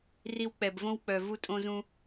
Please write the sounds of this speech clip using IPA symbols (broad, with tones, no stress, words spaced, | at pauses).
ri˧wk͡pɛ˨bvõ˦wk͡pœ˨ vu˦tʼõ˦zũ˦